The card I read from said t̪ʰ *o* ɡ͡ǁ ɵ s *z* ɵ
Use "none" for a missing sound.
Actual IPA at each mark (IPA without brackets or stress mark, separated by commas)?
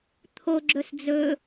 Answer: o, d͡z